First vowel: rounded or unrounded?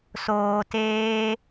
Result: rounded